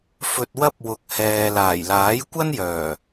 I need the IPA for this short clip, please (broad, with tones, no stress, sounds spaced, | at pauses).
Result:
f ɵ˧ t̚ w ɐ˥ p̚ w ʊ˨ k̚ h ɛː˨ l aː˨˩ j l aː˨˥ j kʷ ɐ˥ n j œː˨˩